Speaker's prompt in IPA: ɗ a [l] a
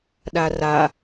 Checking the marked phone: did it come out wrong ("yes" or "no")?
yes